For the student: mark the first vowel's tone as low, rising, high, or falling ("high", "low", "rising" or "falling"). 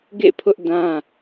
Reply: falling